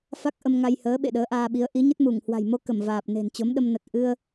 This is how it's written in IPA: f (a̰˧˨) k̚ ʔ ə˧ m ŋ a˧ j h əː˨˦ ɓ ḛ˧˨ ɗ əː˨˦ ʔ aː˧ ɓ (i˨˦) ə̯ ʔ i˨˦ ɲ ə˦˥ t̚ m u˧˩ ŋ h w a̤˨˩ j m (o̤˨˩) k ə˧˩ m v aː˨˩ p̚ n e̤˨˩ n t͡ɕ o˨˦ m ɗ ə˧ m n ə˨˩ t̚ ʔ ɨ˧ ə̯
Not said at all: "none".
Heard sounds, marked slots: a˦˥, i˨˦, o˧

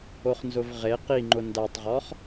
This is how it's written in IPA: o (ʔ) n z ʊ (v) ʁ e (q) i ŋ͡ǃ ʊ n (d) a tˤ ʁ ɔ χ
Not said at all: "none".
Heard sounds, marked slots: χ, v, q, d

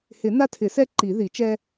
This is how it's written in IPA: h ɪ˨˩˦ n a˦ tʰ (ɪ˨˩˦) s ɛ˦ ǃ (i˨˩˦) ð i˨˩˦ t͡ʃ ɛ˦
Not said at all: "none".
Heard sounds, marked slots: ɪ˨˩˦, i˨˩˦

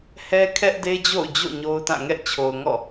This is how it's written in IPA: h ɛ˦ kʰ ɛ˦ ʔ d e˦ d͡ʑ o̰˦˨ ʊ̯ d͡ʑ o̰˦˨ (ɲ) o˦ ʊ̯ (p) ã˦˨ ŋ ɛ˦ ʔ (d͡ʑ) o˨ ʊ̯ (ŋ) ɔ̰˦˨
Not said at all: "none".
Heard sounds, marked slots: ɲ, t, t͡ɕʰ, ŋ

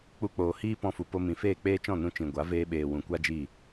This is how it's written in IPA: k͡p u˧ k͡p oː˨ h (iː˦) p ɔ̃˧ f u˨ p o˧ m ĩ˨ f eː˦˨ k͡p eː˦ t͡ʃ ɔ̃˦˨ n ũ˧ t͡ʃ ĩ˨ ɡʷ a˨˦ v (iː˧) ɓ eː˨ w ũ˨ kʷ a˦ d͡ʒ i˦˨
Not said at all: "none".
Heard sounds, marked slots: iː˦, eː˧

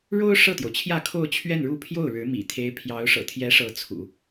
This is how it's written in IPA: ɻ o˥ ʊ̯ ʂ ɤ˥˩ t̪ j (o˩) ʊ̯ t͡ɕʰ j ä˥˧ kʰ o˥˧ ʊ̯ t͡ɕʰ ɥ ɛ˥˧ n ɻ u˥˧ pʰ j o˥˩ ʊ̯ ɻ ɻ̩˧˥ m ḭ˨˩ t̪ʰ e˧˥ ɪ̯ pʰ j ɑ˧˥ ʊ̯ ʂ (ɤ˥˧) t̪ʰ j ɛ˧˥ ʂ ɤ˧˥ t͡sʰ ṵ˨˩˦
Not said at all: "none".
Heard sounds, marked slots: o˩, ɤ̰˨˩

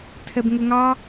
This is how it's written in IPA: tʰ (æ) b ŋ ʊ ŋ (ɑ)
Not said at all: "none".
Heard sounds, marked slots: ɛ, ɑ

